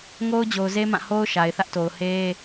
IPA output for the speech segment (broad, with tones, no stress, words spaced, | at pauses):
ŋo˦ʊ̯d͡ʑo˨ʊ̯ze˦ mã˦˨ho˦ʊ̯ ʃa˨ɪ̯θä˦ʔto˨ʊ̯ he˦